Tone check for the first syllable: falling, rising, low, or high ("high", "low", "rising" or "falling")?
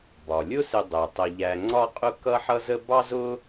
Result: low